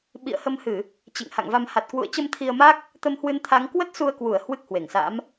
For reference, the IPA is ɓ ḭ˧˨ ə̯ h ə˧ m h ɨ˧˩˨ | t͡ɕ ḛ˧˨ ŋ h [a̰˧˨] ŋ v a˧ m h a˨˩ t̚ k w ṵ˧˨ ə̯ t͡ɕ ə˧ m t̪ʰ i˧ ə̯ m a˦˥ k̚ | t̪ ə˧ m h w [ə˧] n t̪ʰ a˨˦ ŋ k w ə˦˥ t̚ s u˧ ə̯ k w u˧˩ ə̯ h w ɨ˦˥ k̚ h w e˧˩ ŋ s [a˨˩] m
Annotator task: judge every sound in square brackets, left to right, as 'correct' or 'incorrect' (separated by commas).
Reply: correct, incorrect, incorrect